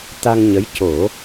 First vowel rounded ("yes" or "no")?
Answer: no